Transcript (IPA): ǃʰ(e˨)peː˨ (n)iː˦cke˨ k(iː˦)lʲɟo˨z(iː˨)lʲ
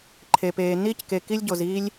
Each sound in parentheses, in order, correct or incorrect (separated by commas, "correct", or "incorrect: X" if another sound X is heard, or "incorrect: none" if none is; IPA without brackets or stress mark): correct, correct, incorrect: i˦, incorrect: iː˦